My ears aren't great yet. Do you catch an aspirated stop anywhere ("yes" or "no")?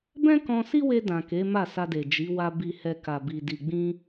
no